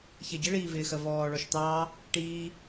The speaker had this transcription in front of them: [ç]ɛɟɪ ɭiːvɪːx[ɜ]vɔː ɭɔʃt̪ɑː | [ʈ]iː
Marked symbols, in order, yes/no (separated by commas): yes, yes, yes